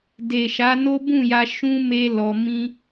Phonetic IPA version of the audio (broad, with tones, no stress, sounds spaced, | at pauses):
d e˨ ʃ a˨˦ n o˦ b ũ˦˨ j a˧ ʃ ũ˦ m e˦ l ɔ˧ m ĩ˦